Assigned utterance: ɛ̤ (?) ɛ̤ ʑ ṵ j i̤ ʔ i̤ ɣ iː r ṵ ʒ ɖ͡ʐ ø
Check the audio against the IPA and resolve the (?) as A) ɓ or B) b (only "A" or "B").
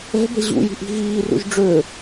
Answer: B